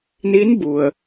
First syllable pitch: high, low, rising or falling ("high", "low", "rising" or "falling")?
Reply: rising